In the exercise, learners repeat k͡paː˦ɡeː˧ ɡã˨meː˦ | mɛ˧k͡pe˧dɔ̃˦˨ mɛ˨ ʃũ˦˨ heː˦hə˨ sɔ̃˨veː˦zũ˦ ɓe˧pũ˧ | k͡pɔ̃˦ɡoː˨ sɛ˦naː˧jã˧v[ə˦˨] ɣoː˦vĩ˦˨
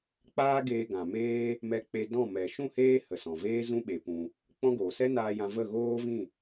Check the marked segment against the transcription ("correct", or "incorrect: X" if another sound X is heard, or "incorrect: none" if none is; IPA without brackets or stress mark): correct